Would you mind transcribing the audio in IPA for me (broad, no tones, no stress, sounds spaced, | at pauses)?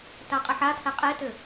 t a qʼ ə ħ a tʰ ɛ qʼ e t ʏ